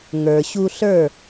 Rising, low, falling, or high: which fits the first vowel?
low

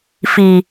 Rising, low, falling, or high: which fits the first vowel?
low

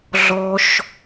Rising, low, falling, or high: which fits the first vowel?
high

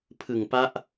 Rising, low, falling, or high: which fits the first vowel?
low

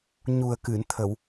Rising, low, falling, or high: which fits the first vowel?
low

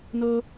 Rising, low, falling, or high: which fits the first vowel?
high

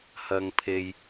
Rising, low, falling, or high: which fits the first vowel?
low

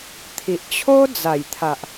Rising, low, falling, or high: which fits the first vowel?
low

